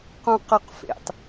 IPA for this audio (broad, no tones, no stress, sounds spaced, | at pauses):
q ũ q ə˞ q f ḛ tˤ